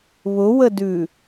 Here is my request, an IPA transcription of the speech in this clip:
βʊwədʉ

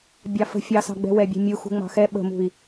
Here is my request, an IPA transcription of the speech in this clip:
bʲɑfə̤ fʲɑsɑ̤ɡ͡bɛ̤ wɛbʲɛ̤ mʲuxṳ ŋ͡mɑ̤xɛ ɓə̤mṳi̯

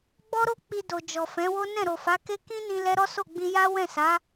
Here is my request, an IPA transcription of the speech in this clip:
ɡ͡bɔ˦ɾo˦ k͡pi˧do˨ d͡ʒɔ˨fɛ̃˨˦wo˦ nɛ̃˦˨ɾo˨fa˨˦ke˦ kĩ˦nĩ˧ lɛ˦ ɾɔ˦so˦˨ɡ͡bĩ˧ ja˦ wɛ̃˦˨sa˨˦

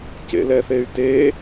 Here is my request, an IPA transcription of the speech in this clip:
cḛlɛθey̯te

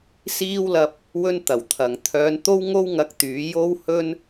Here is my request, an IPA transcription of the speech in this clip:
siː˥wlɐ˧p̚ | wɵ˥n t̪ɐ˨˩wt̪ʰɐ˨ŋ t̪ʰœː˨˧nt̪o˥wŋo˥w ŋɐ˧k̚t̪yː˨˥ jo˥whɵ˥n

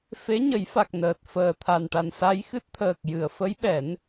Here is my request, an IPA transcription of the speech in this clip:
fe˧˥ɲə˨˩˦jfa˨˩k̚ nəː˨˩t̚fəː˨˩t̪ʰa˨˩nʈa˨˩n sa˧jxɨ˦˥t̚t̪ʰəː˨˩k̚ jɨ˨˩˨ə̯fə˧˥jɓɛ˨˩˦n

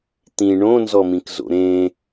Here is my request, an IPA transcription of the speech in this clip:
t̪ĩ ɳõnzɔmĩk zo̰ɾẽ

